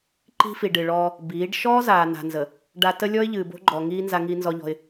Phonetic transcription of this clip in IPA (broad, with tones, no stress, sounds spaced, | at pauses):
ǃ i̤˦ f i˨ ɖ ɨ˨ ɭ ɔː˦ | b iː˨˦ ɖ ʃ ɔː˦ z aː˨ n a̤˨ n z ə˨ | ɖ a˦ t ə˦ lʲ ɔ˦ ɪ̯ ʎ ɨː˨ b o̤˦ ɡ͡ǃ ɔ˨ ŋ iː˦ n z a˦ ŋ i˦ n z ɔ˦ ʎ ɔ̤˦ ɪ̯